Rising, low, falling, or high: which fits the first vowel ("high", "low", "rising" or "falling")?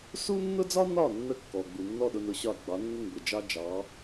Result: high